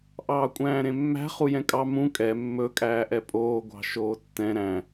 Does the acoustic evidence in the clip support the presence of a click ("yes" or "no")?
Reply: no